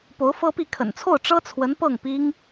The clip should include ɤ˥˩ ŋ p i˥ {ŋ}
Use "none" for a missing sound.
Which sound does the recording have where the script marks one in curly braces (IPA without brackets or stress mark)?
ŋ